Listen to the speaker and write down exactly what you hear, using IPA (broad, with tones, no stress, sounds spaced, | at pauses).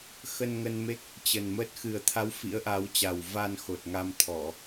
x ə˧ n ŋ ə˧ n m e˦˥ k̚ | t͡ɕ ə˨˩ n m ə˦˥ t̚ x ɨ˨˩ ə̯ t̪ʰ a˨˦ w f ḭ˧˥ ə̯ ʔ a˨˦ w t͡ɕ a˨˩ w v a˧ n x o˨˩ t̚ ŋ a˧ m t̪ʰ ɔ˧˩˨